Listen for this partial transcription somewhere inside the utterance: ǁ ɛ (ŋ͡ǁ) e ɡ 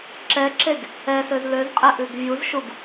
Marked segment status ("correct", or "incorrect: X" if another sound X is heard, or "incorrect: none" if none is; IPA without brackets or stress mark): incorrect: ǁ